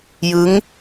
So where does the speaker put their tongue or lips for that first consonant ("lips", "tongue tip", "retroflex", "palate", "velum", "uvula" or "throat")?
palate